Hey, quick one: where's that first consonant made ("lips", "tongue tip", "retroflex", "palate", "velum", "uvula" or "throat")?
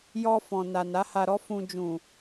palate